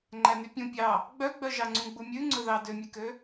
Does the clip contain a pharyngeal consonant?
no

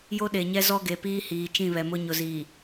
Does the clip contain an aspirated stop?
no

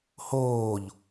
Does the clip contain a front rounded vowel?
no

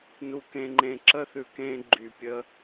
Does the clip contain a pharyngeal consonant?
no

